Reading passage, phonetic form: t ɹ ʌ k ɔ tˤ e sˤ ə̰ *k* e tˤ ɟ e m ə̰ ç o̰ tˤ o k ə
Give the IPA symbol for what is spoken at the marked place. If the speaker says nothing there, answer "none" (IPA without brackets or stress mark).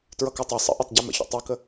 ʔ